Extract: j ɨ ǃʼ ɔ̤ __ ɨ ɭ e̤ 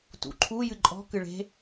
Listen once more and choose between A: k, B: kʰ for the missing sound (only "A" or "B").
A